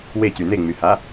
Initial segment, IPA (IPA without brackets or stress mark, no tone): w